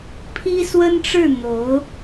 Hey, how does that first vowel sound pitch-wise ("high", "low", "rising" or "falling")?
high